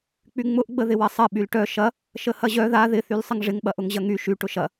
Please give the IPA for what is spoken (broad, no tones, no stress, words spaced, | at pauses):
k͡pyŋ͡mʊʔɡ͡bə ðɪwɐsˤɐ ɓylʈœ ʃɐ | ʃəhɐʑœ ða ðɪθyl sˤəŋʐɪŋɓɐ ʔʊŋʑɐŋy ʃy ʈʊʃɐ